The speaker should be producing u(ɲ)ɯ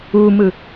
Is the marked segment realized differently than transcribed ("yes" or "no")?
yes